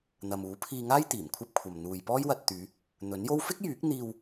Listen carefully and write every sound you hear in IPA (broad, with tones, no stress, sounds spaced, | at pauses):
n̪ ɐ˨ m uː˨˥ pʰ iː˧ ŋ aː˥ j t̪ iː˨˩ m kʷʰ ɐ˥ p̚ kʷʰ ɐ˨ m n̪ uː˨ j p ɔː˥ j w ɐ˧ t̚ t̪ yː˨˧ | n̪ ɵ˨˥ n j o˥ w f ɪ˥ k̚ j yː˨˥ k̚ n̪ iː˧ w